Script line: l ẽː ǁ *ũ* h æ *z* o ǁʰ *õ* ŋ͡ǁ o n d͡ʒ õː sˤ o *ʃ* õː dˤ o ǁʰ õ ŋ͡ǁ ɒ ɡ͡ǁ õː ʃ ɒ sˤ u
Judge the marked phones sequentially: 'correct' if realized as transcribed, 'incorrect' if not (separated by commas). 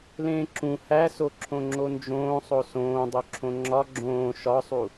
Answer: correct, incorrect, correct, incorrect